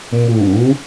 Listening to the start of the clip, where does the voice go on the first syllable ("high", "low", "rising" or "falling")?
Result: low